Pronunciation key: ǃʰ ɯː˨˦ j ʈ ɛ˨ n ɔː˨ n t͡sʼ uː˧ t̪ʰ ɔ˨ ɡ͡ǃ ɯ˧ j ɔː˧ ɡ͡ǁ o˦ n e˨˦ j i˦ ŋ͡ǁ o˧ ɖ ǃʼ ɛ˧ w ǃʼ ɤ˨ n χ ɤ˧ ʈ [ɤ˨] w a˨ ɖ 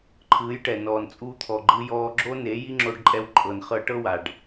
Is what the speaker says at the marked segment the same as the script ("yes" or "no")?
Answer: no